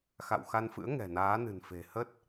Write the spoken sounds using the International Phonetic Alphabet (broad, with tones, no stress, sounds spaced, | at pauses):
x a̰˧˨ w x a˧ n f ɨ̰˧˥ ə̯ ŋ ɛ̤˨˩ n aː˨˦ n ɨ̤˨˩ n f e̤˨˩ h ə˦˥ t̚